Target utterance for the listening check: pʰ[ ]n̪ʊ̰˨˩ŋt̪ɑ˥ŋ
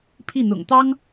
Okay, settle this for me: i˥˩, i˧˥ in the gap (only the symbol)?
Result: i˥˩